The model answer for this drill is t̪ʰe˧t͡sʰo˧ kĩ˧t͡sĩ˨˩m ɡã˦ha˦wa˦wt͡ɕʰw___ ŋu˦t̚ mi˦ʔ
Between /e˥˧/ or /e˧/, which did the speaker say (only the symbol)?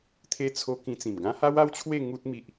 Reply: e˥˧